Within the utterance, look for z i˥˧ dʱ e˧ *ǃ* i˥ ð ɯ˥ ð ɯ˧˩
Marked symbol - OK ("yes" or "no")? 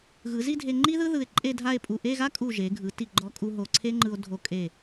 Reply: no